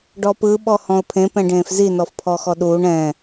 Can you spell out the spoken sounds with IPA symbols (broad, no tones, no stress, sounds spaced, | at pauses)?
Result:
ɖ ɔ p ɯ ɓ ɔ h ɔ̃ ʊ̯ pʰ ẽ p ɛ̃ ɖ ẽː f z i n ɔ f pʰ ɔ x ɔ ɗ uː ɳ ɛ̃